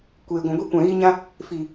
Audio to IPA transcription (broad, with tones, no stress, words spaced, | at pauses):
kʷeː˨ɡʷɛ̃˨ ɡʷi˧ kʷã˨ɣiː˧ɲã˧ | fi˨